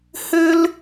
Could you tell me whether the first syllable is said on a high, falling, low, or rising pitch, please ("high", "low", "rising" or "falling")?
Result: high